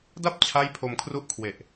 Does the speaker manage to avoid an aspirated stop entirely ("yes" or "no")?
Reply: no